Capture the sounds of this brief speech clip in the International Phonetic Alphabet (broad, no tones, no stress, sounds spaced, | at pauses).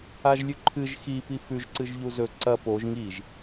a ʒ lʲ ʉ ǃʰ ɨ ʒ x i p i f ʉ ʒ ǀ ɨ ʒ ʎ u z ɵ ǀ ɐ p o ʒ ŋ i ʒ